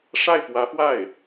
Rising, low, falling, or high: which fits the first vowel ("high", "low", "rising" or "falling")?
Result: falling